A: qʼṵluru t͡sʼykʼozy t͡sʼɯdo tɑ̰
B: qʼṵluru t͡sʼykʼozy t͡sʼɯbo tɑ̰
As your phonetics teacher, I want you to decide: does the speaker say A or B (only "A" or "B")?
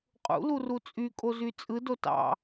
A